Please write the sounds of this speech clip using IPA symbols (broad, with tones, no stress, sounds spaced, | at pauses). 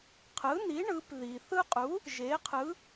qʰ ɯ˩˥ n i˩˥ ɳ ɯ˩˧ p ð i˩ θ ɯ˦ qʼ u˩˥ | ʒ e˩˥ qʰ ɯ˩˥